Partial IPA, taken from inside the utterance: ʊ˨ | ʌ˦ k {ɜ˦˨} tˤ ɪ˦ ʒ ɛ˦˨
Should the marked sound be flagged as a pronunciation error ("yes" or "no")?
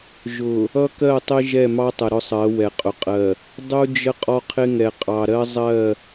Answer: no